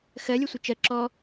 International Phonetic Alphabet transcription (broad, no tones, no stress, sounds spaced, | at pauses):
x ɜ lʲ ɛ sʷ ə t͡ʃ ɜ ǁ ɔ